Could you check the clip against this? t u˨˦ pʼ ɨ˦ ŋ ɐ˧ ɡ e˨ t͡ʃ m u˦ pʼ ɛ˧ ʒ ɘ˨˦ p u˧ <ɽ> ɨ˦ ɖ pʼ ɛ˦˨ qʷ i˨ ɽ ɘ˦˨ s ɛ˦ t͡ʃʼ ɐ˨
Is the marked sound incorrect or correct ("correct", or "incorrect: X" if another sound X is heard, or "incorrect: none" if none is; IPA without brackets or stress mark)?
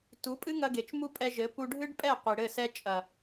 incorrect: ɖʱ